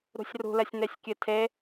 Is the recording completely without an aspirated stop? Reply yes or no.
no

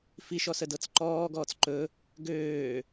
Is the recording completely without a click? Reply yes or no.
no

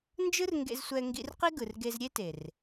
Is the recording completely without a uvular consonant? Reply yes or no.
no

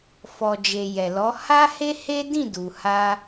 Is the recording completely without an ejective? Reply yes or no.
yes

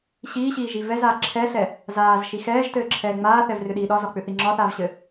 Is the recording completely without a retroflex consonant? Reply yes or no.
yes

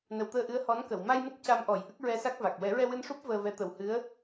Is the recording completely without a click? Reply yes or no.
yes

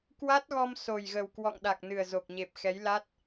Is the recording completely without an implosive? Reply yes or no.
no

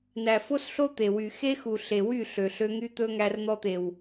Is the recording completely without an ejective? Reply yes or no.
yes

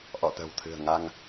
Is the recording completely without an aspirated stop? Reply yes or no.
no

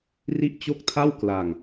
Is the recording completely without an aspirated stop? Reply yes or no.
no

